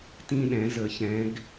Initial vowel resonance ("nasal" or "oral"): nasal